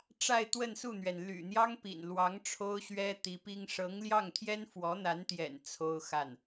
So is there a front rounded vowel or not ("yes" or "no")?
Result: yes